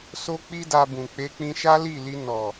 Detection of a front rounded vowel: absent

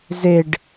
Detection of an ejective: absent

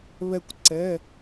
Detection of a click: present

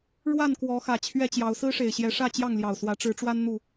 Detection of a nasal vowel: absent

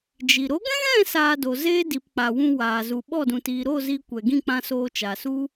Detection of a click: absent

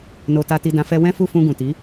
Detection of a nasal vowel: present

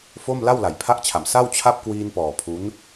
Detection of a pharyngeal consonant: absent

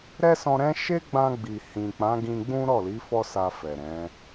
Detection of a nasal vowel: present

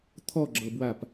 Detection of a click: present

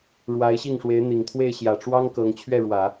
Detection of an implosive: absent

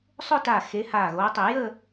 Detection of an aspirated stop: absent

